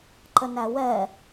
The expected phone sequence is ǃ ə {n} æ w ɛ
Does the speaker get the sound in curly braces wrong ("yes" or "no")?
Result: no